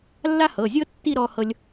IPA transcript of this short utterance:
lː a˥ h ɤ˩˧˩ zʲ ɤ˥ tː i˥˧ ɾ ɔ˥ h ɤ˥ lʲ

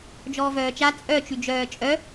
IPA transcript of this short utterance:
d͡ʒ ɔː v œː t͡ʃ a t͡sʼ œ t͡ʃ y d͡ʒ œː t͡ʃʼ œ

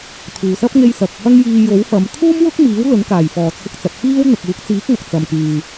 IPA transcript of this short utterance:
t̪ʰ uː˨ s ɐ˥ p̚ ŋ e˧ j s ɐ˨ k̚ h ɐ˥ ŋ j iː˧ j o˨˥ w f ɐ˨˧ m t̪ʰ uː˥ m w ʊ˥ k̚ m iː˨˥ w l ɵ˨˥ n k aː˨˩ j f ɔː˨˩ t͡sʰ ʊ˧ k̚ t͡s ɐ˨ p̚ f iː˥ w n̪ ʊ˨ k̚ uː˨˥ k̚ t͡s iː˨˥ k̚ ŋ ɐ˨ k̚ t͡s ɐ˨ m k yː˨

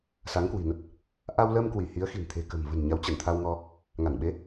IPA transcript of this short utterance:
s a˨˦ ŋ k w i̤˨˩ n ə˦˥ t̚ | ʔ a˧ w l əː˧ m k w i˧˩ h i˨˦ ə̯ x i̤˨˩ n t̪ʰ e̤˨˩ k ə̤˨˩ m v ə̤˨˩ n ɲ a˨˦ w t͡ɕ ə˧˩ n t̪ʰ a˧ w ŋ ɔ˧ | ŋ a˧˩ n ɓ e˨˦

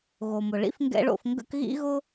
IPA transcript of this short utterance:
ɣ o˩ m ʊ˩ ɭ ḭ˥ f ŋ ɡ ɛ̰˥ ɭ o̰˧ f ŋ ɡ ə̰˥ k ɣ ḭ˥ ɣ ʊ˥

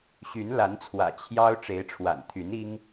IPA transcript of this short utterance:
ɕ y˨˦ n l a˨˦ n t͡sʰ w ä̰˨˩ t͡ɕʰ j ɑ˦ ʊ̯ ʈ͡ʂ e˨˦ ɪ̯ ʈ͡ʂʰ w a̰˨˩ n t̪ʰ y˨˦ n i˦ ŋ

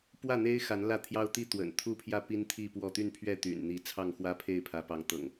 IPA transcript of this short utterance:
p w ä˥˨ n̪ e˦ ɪ̯ x a˨˦ n l ä˥˨ t̪ʰ j ɑ˦ ʊ̯ t̪ i˥˨ t̪ w ə̰˨˩ n t̪ʰ u˥˨ pʰ j ä˥˨ p i˦ n t̪ʰ i˥˨ p w ɔ˥˨ t̪ y˥˨ n pʰ ɥ ɛ˥˨ t̪ y̰˨˩ n n̪ i˨˦ t͡sʰ ɑ˥˨ ŋ x w ä˦ pʰ e˥˨ ɪ̯ pʰ ä˨˦ p ɑ˨˦ ŋ t̪ ɤ̰˨˩ ŋ

